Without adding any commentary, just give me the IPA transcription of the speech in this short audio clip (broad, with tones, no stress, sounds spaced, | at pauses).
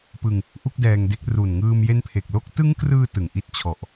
p ɯ˧ ŋ | ʔ u˥˩ k̚ d ɛː˧ ŋ d e˦˥ k̚ r u˨˩ n ŋ ɯː˧ m j e˦˥ n pʰ e˨˩ k̚ l o˥˩ k̚ t ɯ˦˥ ŋ k r ɯː˧ t ɯ˨˩ ŋ ʔ i˦˥ t̚ t͡ɕʰ ɔ˨˩ ʔ